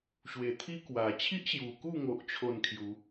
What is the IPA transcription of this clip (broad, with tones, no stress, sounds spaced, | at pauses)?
ɕ w e˨˩ t̪ʰ i˦ k w a˨˩ t͡ɕʰ i˦ ʔ ɕ j u˨˩ k u˥˧ ŋ o˦ ʔ t͡ɕʰ o˥˧ n kʰ j u˨˦